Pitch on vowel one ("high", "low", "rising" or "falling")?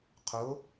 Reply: rising